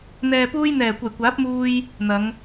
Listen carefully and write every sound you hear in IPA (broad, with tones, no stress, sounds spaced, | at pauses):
n̪ ɛː˨ p uː˧ j n̪ ɛː˨˩ kʷ ɐ˨˩ j kʷ aː˨˥ p̚ m uː˧ j | n̪ ɐ˨˧ ŋ